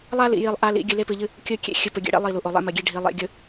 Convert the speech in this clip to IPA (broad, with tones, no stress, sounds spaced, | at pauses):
lˠ a˦ l ḭ˨ j i˨ lˠ ʔ a˨ l ḭ˨ ɡʲ ɨ˨ l e˦ p ɨ˨ ʎ ɨ˦ | kʲ ɵ˦ kʲ ḛ˦ xʲ ɨ˨ p ɵ˨ ɡʲ ḛ˦ ɽ ḛ˦ lˠ i˦˨ l u˨ ʔ o˨ lˠ ḛ˦ m ɐ˨ ɡʲ e˦ ɖʱ i˨ lˠ ḛ˨ ɡʲ ɵ˨